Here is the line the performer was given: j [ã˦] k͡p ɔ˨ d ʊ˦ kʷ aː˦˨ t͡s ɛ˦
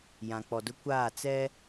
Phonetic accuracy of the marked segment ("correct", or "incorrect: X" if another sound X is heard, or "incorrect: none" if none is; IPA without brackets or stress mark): incorrect: ã˨